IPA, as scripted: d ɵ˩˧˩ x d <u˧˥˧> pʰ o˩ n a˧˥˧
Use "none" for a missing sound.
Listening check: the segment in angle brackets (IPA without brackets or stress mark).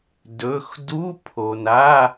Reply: u˧˥˧